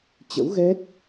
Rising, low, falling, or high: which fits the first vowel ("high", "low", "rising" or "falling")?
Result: rising